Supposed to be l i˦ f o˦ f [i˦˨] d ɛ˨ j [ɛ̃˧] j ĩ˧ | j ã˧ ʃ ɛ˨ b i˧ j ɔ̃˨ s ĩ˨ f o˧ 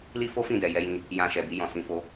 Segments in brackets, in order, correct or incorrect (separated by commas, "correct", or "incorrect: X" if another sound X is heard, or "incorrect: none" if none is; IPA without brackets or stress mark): incorrect: ĩ˦˨, incorrect: ɛ˧